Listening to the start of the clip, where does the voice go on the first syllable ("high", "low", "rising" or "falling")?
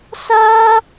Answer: high